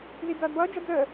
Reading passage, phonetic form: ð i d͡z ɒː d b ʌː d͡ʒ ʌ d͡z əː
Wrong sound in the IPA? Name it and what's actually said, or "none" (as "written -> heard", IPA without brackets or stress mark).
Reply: ɒː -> ʌː